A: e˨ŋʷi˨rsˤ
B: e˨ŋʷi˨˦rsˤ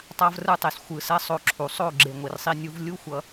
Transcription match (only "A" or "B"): A